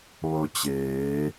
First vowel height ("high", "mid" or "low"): mid